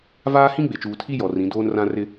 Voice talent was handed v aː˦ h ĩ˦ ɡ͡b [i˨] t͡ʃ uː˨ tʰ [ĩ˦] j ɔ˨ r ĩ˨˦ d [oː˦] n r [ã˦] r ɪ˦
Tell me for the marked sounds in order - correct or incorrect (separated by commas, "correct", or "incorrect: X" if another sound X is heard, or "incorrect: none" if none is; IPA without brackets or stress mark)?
incorrect: e˨, incorrect: i˦, correct, correct